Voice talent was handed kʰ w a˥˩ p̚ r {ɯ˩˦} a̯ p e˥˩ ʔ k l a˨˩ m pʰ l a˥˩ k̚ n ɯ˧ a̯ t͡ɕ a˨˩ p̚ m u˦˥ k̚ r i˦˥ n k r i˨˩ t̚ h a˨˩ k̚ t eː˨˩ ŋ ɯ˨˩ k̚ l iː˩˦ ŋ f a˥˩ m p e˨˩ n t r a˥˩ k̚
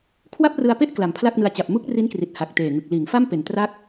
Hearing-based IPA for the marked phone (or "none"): ɯ˧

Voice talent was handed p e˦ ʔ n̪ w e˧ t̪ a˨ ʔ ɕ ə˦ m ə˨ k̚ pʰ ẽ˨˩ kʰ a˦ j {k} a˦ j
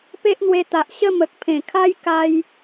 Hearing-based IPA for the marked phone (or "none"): k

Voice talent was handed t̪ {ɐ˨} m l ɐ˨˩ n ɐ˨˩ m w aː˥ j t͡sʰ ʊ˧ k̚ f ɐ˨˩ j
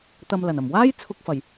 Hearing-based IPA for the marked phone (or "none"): ɐ˨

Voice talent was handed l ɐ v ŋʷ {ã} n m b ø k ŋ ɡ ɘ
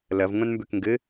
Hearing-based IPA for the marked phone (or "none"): ã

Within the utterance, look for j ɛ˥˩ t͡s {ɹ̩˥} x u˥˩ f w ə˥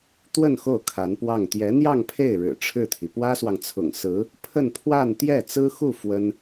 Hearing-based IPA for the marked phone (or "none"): ɹ̩˥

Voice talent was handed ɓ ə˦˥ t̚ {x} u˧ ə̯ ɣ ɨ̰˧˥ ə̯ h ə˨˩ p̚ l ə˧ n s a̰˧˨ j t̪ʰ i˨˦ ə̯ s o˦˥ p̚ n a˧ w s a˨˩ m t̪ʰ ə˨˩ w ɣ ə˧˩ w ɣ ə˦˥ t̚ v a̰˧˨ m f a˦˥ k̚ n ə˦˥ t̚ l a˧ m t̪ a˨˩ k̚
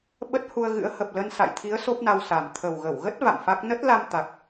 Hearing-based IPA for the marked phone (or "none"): h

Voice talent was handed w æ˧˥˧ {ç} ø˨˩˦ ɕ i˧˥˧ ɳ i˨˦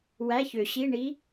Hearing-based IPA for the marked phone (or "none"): ç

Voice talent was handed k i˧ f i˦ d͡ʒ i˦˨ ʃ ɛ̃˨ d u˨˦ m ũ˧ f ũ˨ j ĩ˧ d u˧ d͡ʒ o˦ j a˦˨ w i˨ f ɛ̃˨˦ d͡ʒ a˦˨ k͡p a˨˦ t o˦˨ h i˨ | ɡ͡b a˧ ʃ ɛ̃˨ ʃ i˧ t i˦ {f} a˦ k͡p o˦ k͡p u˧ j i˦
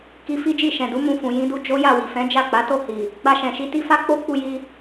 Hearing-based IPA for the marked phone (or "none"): f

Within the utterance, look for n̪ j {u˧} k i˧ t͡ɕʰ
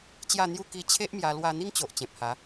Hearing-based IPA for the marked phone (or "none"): u˥˧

